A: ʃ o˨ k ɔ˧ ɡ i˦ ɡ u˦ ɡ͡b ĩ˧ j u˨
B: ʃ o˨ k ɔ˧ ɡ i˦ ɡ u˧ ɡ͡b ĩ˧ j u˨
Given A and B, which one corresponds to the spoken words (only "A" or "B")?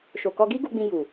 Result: B